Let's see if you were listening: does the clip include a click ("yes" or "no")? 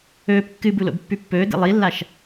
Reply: no